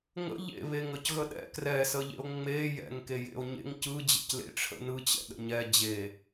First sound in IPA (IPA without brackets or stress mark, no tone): ŋ